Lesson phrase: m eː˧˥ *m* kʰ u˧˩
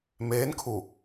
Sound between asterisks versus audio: incorrect: n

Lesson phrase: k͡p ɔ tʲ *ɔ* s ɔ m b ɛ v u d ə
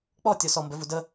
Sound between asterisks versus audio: correct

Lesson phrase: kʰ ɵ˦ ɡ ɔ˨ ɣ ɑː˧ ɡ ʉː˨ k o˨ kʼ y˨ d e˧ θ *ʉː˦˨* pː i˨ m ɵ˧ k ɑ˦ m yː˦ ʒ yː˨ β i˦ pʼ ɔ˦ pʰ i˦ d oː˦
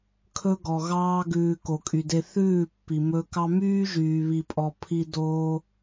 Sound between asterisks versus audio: correct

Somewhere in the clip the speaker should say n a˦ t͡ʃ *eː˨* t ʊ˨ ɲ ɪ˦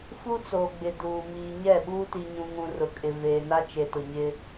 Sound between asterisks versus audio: incorrect: e˨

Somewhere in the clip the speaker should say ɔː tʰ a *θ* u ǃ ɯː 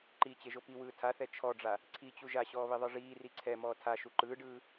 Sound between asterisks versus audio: incorrect: ʃ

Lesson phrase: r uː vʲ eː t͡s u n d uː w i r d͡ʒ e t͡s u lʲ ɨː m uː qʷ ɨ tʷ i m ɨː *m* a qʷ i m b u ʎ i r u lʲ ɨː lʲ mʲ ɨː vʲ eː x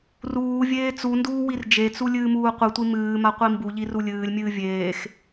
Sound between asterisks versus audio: correct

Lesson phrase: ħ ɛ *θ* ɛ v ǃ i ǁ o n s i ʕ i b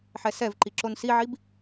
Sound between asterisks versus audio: incorrect: s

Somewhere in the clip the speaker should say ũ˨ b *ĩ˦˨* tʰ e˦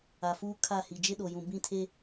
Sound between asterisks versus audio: correct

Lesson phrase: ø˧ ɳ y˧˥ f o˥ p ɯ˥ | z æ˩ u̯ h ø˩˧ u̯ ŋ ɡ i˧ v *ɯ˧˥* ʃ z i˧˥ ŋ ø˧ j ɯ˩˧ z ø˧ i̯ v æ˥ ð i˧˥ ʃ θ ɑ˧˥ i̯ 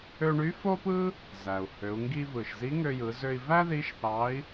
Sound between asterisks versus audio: incorrect: ɯ˩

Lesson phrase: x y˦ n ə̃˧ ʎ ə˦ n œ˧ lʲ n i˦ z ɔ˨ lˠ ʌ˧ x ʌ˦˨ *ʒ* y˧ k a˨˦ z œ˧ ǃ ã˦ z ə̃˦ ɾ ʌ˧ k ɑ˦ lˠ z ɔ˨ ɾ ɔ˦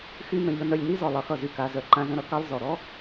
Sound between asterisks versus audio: incorrect: z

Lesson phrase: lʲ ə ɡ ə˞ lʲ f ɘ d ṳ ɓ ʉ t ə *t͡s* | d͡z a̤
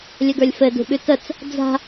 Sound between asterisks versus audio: correct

